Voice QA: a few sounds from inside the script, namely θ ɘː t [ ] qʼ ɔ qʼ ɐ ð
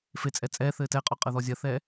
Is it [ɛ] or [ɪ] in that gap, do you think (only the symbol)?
ɛ